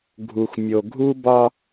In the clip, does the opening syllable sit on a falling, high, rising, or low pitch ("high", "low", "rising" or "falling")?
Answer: low